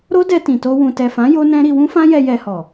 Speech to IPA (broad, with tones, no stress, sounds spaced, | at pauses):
ɾ o˦ d ɛ˧ t ĩ˨ t o˧ w ũ˨ t ɛ˨ f ã˨˦ j o˦ n ɛ̃˦ ɾ i˧ w ũ˦ f ã˦ j ɛ˧ j ɛ˧ h ɔ˨